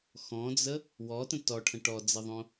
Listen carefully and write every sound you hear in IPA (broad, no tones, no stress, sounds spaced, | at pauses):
x ɔ̃ d͡z ə | w ɔ t ə̃ t ɔ ʈʰ ə̃ ʈ ɔ d͡z ɘ ðˤ õ